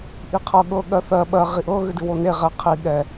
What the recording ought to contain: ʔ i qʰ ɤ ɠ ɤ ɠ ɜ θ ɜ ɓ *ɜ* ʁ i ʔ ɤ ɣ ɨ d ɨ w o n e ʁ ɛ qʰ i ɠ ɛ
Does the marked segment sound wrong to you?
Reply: no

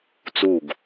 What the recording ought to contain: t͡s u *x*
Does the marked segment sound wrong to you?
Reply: yes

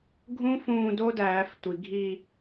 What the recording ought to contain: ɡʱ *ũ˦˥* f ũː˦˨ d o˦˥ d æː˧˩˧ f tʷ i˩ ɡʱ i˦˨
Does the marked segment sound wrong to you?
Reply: no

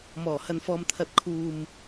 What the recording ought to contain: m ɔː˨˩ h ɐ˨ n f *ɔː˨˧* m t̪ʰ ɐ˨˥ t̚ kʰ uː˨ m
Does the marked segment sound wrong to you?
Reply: yes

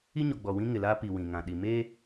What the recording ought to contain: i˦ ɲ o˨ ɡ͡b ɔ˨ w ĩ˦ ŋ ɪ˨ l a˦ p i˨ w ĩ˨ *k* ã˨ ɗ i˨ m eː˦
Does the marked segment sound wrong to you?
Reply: yes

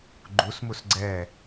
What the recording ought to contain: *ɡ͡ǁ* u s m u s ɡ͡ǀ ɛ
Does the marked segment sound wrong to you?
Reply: yes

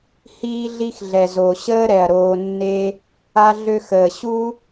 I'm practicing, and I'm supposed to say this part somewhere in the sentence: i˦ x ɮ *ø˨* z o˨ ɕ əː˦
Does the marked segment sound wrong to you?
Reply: yes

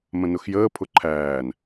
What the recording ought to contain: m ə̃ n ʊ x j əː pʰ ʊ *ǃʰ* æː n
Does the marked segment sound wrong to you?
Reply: no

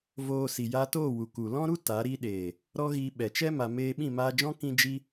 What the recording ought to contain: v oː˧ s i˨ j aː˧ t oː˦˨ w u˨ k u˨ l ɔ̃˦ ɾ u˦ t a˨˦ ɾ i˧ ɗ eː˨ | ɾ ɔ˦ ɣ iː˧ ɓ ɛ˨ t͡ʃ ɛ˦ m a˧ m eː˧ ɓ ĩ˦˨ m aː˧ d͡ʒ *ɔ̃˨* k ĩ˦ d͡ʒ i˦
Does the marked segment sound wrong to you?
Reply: yes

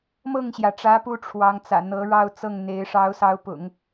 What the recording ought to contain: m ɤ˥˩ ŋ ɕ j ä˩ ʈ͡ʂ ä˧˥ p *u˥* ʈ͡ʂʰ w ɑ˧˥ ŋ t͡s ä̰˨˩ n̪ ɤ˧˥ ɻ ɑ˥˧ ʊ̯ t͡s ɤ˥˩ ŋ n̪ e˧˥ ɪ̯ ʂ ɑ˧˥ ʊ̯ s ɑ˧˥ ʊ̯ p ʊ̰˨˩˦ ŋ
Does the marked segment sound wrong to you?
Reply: no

